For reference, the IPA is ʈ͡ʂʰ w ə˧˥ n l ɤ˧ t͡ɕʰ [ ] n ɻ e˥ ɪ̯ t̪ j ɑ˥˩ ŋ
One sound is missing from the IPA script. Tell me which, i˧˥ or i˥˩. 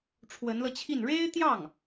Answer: i˥˩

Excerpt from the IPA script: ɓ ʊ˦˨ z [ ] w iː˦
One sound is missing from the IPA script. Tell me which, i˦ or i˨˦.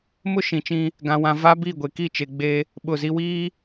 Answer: i˦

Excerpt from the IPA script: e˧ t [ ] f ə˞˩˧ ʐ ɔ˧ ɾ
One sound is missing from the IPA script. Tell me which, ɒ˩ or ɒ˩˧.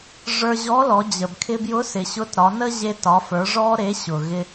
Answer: ɒ˩˧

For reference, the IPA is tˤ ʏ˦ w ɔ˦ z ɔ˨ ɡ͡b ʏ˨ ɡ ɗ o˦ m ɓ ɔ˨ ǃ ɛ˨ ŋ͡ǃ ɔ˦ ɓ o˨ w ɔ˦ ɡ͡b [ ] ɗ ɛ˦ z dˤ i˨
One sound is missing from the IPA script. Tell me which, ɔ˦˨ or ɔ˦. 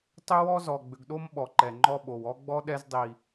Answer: ɔ˦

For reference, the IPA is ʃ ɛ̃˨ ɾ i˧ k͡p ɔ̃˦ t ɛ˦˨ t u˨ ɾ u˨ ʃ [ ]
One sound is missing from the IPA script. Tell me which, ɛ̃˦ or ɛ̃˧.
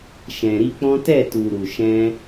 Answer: ɛ̃˧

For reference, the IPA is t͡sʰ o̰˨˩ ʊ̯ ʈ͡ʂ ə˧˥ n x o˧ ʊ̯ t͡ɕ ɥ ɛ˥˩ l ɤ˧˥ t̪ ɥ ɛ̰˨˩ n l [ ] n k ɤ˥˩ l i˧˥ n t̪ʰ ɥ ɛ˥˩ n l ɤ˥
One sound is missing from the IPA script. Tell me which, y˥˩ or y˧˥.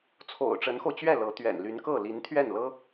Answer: y˧˥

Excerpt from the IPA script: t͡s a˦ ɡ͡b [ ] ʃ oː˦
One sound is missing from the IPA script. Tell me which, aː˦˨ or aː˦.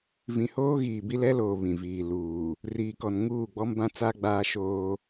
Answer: aː˦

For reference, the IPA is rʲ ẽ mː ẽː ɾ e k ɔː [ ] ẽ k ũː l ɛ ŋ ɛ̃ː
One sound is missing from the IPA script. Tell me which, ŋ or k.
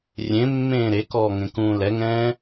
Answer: ŋ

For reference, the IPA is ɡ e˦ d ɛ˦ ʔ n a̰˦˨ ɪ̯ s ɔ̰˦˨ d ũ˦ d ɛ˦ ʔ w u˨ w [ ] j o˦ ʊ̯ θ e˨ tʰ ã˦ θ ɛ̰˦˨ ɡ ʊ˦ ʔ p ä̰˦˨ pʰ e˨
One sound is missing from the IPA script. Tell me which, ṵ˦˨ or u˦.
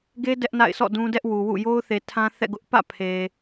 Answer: ṵ˦˨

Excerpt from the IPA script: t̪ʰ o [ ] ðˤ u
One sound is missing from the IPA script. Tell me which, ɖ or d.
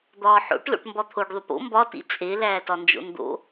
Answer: ɖ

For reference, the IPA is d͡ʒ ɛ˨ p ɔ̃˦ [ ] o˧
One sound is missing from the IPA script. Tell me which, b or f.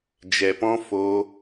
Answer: f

